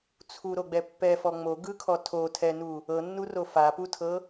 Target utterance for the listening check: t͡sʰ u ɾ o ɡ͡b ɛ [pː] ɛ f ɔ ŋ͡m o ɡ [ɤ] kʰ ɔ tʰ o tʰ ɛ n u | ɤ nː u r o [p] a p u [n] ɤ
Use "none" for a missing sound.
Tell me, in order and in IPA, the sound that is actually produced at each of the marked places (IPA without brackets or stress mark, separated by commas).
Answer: pː, ɯ, f, tʰ